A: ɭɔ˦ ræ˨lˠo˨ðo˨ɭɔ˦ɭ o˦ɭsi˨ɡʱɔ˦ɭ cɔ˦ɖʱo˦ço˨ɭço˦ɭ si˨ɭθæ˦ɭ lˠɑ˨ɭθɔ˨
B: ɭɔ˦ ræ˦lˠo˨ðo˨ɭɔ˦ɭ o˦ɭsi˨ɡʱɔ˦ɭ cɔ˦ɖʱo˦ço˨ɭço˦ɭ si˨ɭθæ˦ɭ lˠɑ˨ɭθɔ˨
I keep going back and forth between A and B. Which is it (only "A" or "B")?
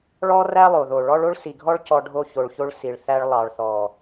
B